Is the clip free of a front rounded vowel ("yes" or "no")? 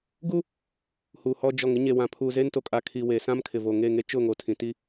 yes